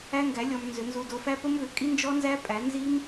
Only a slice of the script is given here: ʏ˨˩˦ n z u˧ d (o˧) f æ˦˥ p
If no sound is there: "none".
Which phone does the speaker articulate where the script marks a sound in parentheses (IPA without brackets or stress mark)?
o˧